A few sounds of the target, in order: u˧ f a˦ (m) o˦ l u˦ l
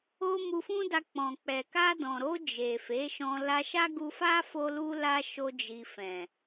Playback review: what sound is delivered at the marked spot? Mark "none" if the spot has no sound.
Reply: f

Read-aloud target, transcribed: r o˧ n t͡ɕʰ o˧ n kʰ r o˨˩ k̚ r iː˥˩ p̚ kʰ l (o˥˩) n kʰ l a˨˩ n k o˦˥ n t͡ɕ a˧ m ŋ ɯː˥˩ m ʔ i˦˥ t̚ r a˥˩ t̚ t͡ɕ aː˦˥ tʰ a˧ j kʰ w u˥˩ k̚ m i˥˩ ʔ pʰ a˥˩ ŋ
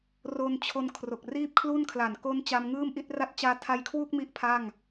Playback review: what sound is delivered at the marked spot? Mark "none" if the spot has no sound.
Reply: u˥˩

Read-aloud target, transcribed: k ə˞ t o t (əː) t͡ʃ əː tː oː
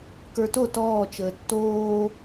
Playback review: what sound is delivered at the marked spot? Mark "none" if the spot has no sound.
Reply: ɔː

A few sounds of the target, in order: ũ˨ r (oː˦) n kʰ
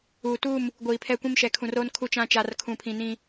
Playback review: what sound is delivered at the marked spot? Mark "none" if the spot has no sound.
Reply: oː˦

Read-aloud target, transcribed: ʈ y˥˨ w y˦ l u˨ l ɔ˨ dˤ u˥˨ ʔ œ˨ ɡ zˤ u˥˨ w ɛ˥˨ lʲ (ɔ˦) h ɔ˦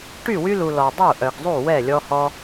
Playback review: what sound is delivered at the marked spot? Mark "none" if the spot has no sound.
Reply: ɔ˦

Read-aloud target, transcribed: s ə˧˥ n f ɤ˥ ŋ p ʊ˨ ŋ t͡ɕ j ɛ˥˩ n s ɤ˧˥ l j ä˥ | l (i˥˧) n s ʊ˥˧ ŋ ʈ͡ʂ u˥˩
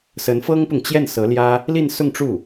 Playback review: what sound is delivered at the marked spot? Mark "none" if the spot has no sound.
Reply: i˥˧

